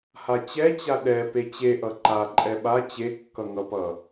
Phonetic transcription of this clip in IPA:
h a t͡ɕ ɛ t͡ɕ a ɗ ɛ p e t͡ɕ e ʔ ʌ ǃ a ǃʼ ɛ ɓ a t͡ɕ e kː ʌ ŋ ʌ p ʌ

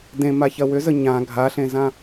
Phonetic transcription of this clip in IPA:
d ẽ m a ç ɐ w ʏ z ə ɲ ã ɡʱ a ɬ ẽ z ã

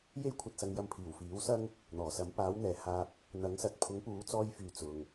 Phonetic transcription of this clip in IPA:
j e˥ j kʷʰ ɐ˧ t̚ s ɐ˨˧ ŋ j ɐ˧ m pʰ iː˨˩ w f iː˨˥ w s ɐ˥ ŋ | n̪ ɔː˨˩ s ɐ˨˥ m p aː˨˥ w n̪ ɛː˨ h aː˧ p̚ | n̪ ɐ˨˥ ŋ s ɐ˨ t̚ pʰ ʊ˨˥ ŋ p uː˨˥ t͡s ɔː˧ j f yː˨ t͡s ʊ˧ ŋ

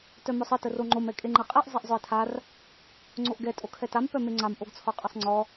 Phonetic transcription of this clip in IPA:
t œ m œ sˤ ə t ə r o ŋ͡ǃ o m ɛ kʼ e ŋ͡ǃ ɛ qʼ ɛ ʔ zˤ e ʔ zˤ œ e̯ tʰ a r | ŋ͡ǀ o ʔ ɡ ɛ tʼ o kʰ ɛ t a m p œ m e ŋ͡ǀ a m ʔ o ɡ t͡sʰ ɔ qʼ ə sˤ ŋ͡ǀ ɔ

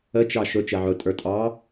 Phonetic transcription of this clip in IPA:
ə t͡ʃ ɑ ʃ ʊ t͡ʃ ɛ ʕ ʊ tʼ ə˞ tʼ ɑ

